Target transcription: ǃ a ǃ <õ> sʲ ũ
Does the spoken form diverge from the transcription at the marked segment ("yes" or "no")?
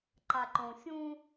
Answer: no